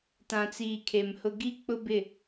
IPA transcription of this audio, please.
t ã˨ t͡s iː˨ kʰ e˨ m h ʊ˦ ɡ i˦ k͡p ʊ˦ b ɪ˦˨

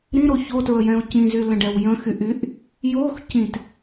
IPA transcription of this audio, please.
ɾ ĩ ɾ o ç o t ɹ ə j ɛ̃ o̯ c ĩ z y l ə̃ ɖ ɛ w j ə̃ x y ʔ y ʔ | j o x c ĩ t

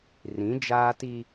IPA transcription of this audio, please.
r ĩ˨˦ d͡ʒ aː˦ t i˦

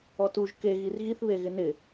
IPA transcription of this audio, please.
ɔ t u ʒ k e ɣ i r ɣ i θ β e ɣ ɪ n ɪ

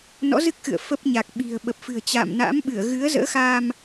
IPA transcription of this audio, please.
n ɔ̰˧˥ z ɨ˦˥ k̚ x ɨ̰˧˨ ə̯ f ə˦˥ p̚ ɲ a˨˩ k̚ ɓ i̤˨˩ ə̯ ɓ ə˨˩ p̚ f ɨ̤˨˩ ə̯ t͡ɕ a̰ː˧˨ m n a̰˧˥ m ɓ ɨ˧˩ ə̯ ɣ ɨ˨˦ ə̯ z ə̰ː˧˥ x aː˧ m

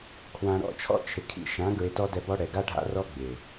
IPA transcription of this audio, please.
kʰ w ã˧ ɾ ɔ̰˦ t͡ʃʰ ɔ̰˦ t͡ʃʰ ɪ˨ kʰ ḭ˧ ʃ ã˨˦ ɡ ɹ ɪ˧ t ɔ˦ d ɛ˧ b ɔ˦ ɽ ɛ˨ ɡ a˦ ɖʱ a̰˦ r ɔ˦ ɡ͡b ɪ˨

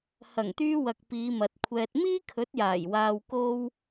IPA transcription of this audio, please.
h ɐ˨˩ ŋ t̪ yː˧ w ɐ˨ k̚ p iː˨˧ m ɐ˨ t̚ kʷʰ ɛː˧ t̚ m iː˥ kʰ ɵ˨˥ t̚ j aː˨˩ j w aː˧ w k o˥ w

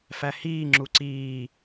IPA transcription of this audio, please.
f æ h iː ŋ͡ǁ u ǀ iː

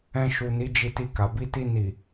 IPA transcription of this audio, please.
ɛ̃˧ ʃ u˨ n i˨˦ d͡ʒ i˧ t i˧ k a˨ b i˧ t i˧ n i˨

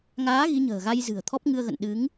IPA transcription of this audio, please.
ŋ aː˨˦ ɣ i˨˦ ɲ ə̤ː˨˩ ɣ a˧ j z ɨ̤˨˩ ə̯ t̪ʰ ɔ˦˥ p̚ ŋ ɨ˧ ə̯ ɣ ə̰˧˨ n ɗ ɨ˨˦ ŋ

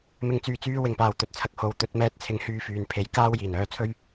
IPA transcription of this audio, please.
m ɪ˨ ŋ t͡s yː˨˩ t͡s yː˧ w ɪ˨˩ ŋ p aː˨˩ w t̪ ɵ˨ t̚ t͡sʰ ɐ˨ k̚ h o˨ w t̪ ɵ˧ t̚ m ɛː˧ t̚ t͡sʰ ɪ˨˥ ŋ h yː˧ f yː˨ n pʰ e˨˥ j k aː˥ w j iː˨˩ n œː˧ t͡sʰ ɵ˥ ɥ

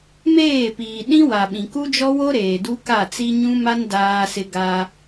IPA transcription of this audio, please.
m eː˦˨ p iː˨ ɗ ĩ˦ w a˨ ɓ ĩ˨ k u˦ d͡ʒ ɔ˦ w o˦ ɾ eː˨ d u˦ k a˦˨ t͡s i˦ ɲ ũ˦ m a˦ n d aː˦ s ɪ˦ ɡ a˦

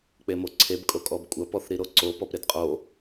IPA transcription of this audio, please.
k͡p e m o ǀʰ e b kʼ o kʼ ɔ b kʷʼ ɐ p ɔ θ ɾ i ɾ o ǀ o p ɔ p ɾ e d qʼ o

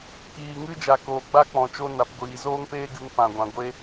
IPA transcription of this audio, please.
k iː˨ ŋ ɨ˦ d͡ʒ a˨ k oː˨ ɡ͡b a˦ k͡p ɔ̃˨ t͡ʃ o˦ n a˨ p ɡʷ iː˨ z oː˦ ŋ p eː˦ ɡ ɨ˧ ŋ p ã˨ ɡʷ ã˨ ɡʷ e˦

